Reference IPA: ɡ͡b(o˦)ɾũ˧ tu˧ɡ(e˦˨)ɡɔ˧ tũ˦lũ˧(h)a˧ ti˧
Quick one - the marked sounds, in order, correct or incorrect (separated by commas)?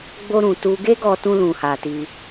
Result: correct, incorrect, correct